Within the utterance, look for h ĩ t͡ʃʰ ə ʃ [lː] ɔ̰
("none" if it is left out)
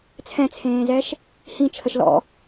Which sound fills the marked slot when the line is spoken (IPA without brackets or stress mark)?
l